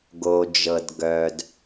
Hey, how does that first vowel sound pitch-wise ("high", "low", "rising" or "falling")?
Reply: low